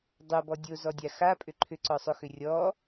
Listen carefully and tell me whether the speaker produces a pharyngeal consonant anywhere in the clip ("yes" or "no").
no